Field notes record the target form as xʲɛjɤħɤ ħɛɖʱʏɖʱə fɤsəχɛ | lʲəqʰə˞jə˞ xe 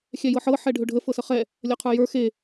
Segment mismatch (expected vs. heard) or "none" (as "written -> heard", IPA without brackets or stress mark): none